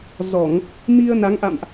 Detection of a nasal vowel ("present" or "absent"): absent